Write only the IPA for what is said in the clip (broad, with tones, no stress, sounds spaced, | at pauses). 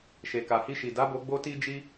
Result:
ʃ e˨ k a˨ h i˧ ʃ i˨ d a˨˦ b o˧ ɡ͡b o˦ t i˦ d͡ʒ i˦